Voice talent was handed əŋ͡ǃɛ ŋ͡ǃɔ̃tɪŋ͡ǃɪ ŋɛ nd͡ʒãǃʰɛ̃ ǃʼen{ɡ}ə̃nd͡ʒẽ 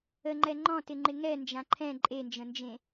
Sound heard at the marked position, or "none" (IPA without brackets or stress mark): d͡ʒ